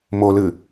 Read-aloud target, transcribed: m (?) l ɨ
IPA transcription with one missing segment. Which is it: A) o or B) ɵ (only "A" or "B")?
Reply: A